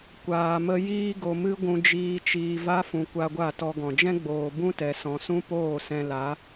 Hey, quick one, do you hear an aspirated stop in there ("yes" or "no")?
no